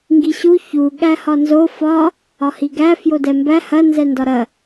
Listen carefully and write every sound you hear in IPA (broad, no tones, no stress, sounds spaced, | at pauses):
ŋ ɡ i ɕ u ç u ɠ æ h ɒ n z o f ɒ | ɒ h i ɡ æ f j o d ɛ m b æ h ɐ n z ɛ n d ɒ ɾ ɐ